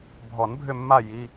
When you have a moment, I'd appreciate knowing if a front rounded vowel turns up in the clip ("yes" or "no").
yes